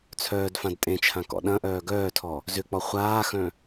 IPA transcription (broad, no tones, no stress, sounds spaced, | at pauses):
t͡sʰ œː d f ã d tʼ ẽ t͡ʃʰ ã k ɔ̰ ɗ ɐ̃ ʔ œː ɡ œː tʰ ɔ | z ʏ k͡p ɔ χʷ aː x œ̃